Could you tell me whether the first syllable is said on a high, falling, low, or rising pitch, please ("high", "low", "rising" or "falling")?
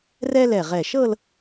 high